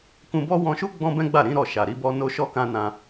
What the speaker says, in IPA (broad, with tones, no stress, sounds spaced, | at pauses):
k ũ˧ b ɔ˦ w ɔ̃˧ ʃ u˦ ɡ͡b ɔ̃˦ b ɛ̃˦ ɡ͡b a˦˨ ɾ ĩ˨˦ ɾ ɔ˦˨ ʃ a˨ ɾ i˨˦ b ɔ˧ n o˧ ʃ ɔ˧ k ã˧ n ã˧